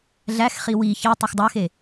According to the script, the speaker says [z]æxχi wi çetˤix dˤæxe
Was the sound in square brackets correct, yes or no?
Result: no